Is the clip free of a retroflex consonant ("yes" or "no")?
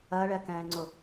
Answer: no